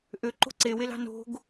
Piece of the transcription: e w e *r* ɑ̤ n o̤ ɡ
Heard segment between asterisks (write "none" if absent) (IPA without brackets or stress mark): l